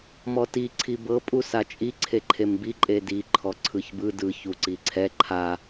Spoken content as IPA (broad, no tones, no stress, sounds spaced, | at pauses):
m ɔ t i ǀʰ i b ɤ pʼ u s a t͡ʃʼ i ǀʰ e ǃʰ e m b i ǃʼ e d i ǃʰ ɔ ǀʰ ɯ ç b ɯ d ɯ ç u ǀ i ǀʰ ɛ ǃʰ a